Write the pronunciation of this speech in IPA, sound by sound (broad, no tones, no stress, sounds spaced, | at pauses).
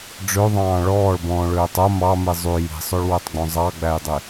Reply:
ɖ͡ʐ ø ðˤ ɑ̃ː ɭ ɔː ɭ b ɔ̃ː ɭ øː tˤ o m ɑ m i zˤ y j i̤ sˤ o ɭ w ø tˤ ɡ͡b õ zˤ ɑ ɡ͡b æ j dˤ i